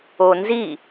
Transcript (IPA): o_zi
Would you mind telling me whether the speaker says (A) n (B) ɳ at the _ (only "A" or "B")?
A